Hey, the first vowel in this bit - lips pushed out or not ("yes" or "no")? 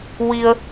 no